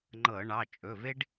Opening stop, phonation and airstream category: click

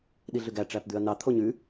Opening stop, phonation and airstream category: implosive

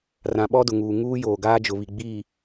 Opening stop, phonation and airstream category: implosive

